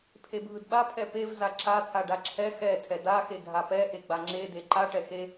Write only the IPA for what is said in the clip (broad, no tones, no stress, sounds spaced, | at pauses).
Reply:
pʰ e bʱ ɯ d ɓ a pʰ ɛ p e v z a ǁ a t̪ʰ a ɖ a ǁʰ ɛ x ɛ tʰ ɛ d a x e ɡʱ a p ɛ ʔ e ɡ͡b a ŋ͡ǁ e d e ǃ a ʈ ɛ x e